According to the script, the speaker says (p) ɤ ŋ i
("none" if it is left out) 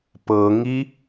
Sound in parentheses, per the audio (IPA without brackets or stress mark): p